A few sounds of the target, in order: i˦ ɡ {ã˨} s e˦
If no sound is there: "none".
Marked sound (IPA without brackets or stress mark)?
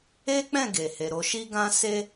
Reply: ã˦